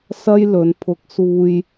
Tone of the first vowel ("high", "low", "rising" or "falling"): high